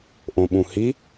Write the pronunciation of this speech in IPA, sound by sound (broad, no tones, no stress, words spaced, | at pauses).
ʔõɓũhi